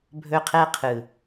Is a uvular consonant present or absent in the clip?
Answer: present